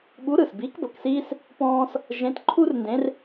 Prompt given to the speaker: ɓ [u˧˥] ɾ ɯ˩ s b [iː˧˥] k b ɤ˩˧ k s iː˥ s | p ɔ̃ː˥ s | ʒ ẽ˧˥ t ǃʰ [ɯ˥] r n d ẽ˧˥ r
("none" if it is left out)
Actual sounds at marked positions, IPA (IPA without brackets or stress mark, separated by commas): u˧˥, iː˧˥, u˥